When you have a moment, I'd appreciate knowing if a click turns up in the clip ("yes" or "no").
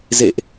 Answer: no